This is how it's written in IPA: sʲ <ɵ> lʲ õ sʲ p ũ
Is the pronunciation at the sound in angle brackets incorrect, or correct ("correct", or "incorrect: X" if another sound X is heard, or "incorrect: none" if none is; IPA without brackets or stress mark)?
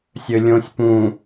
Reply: correct